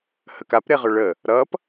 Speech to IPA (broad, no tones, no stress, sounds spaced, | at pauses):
h ə k a p ɾ e ʁ ʏ ɭ ə | ɾ ʌ p